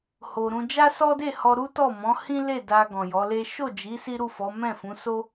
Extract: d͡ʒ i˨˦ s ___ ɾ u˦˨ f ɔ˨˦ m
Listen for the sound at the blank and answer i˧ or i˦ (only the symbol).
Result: i˦